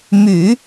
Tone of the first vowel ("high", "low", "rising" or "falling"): low